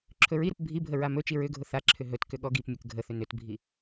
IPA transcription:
ǁʰɵɹiɾʊp bʱibʱə ɹamɵt͡ʃi ɹʏɡʱʊ θaǁʰʏ ɦɵtkʏ ɠɔɡipmʲʊk ɡʱəθʏ nʏtbʱi

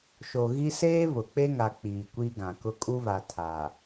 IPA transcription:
ʃo˨ɣi˦ seː˦ βʊ˨ k͡pe˦ŋa˨ k͡piː˨kʷi˦ɡã˨ kʊ˦ kʼu˦βa˨ tʰa˨

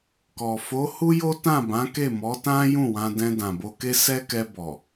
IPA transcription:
kɔ˨ fo˨˦hu˦jo˦ tã˦˨bã˨˦ke˦˨ mɔ˨˦tã˦ jũ˦˨wã˧ dɛ̃˧dã˨bo˧ke˦ sɛ˦kɛ˧bɔ˨

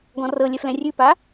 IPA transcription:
ɡɔ̃rɤlʲɛ flɛ̃rʲʉpa

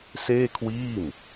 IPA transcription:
seː˥˩kʰwiː˥˩m

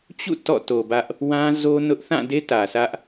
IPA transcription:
t͡ɕṵ˦˨ tɔ̰˦˨to˨bä˦ʔ | wã˦zo˦nʊ˦ʔ θã˦˨de˦ tä˨sä˦ʔ

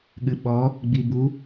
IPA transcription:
ɠɨɓɔ | ɡ͡bibu

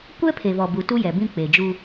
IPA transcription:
kʷɛ˦pʰe˨βɔ˨ bu˨tu˦jɛ˨bĩ˦ k͡pe˨d͡ʒu˦

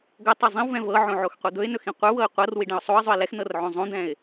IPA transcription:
ɡɵtˤi zˤĩwvɛ̃ vɤʕõ ʕoxqʷid̪ɵɪ̯nɵx ĩqʷə˞wɤɪ̯ qʷɤr wiɖɛ̃ʊ̯sˤoə̯zˤɵɪ̯ lɛx nɤrʕõzˤõd̪ɛ̃ɪ̯

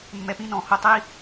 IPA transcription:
mːɛ˧pĩ˦nɔ̃˨˦ho˧ tˤi˦

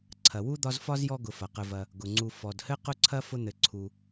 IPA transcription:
ǀʰɐ˩wu˥ d̪ɒ˦zfɒ˥zjɔ˦ ɡʊ˨fɐ˩qɘ˨vɐ˨ | ɡʊ˩ŋ͡ǀu˨ fɔ˩dhɘ˥ qʊ˥ǀʰɐ˥ fʊ˦n̪ɘ˨ǀʰu˨

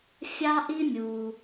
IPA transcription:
fʲɑ˥ʔi˥ mʲu˩

